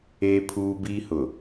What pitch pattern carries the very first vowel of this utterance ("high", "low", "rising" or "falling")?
high